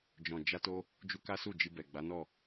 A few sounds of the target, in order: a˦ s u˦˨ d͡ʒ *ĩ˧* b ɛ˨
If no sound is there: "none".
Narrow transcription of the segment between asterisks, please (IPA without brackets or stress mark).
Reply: i˧